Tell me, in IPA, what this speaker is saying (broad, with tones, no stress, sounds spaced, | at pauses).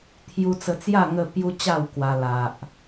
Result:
t̪ʰ j u˧ t͡s ə˧ t͡s j a˥˧ ŋ ə˥˧ p j u˦ t͡ɕ a˥˧ w k w a˧ l a˨ ʔ